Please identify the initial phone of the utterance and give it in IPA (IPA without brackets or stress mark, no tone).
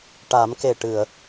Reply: ʈ